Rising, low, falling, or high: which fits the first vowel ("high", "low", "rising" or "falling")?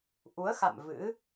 rising